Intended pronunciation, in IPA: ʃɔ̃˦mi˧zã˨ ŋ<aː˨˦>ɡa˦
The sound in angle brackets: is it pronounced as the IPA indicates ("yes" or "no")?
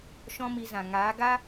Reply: yes